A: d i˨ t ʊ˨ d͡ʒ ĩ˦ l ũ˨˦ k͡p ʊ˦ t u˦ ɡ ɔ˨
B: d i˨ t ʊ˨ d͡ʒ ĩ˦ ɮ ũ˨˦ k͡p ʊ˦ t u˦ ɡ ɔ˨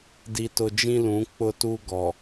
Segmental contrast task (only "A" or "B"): A